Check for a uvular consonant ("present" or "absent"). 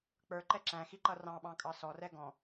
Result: absent